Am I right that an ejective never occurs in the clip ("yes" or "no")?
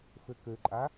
no